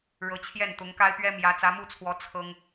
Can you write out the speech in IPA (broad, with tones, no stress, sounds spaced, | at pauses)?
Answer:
ɻ ɤ˧˥ t͡ɕʰ j ɛ˥˩ n t̪ ʊ˧˥ ŋ k a˥ ɪ̯ p ɥ ɛ˥ m j ä˧˥ t͡s ä˧˥ m u˥˩ t͡sʰ w ɔ˧˥ t͡sʰ ɤ˥ ŋ